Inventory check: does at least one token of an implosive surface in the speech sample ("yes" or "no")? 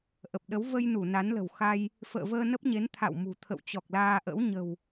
yes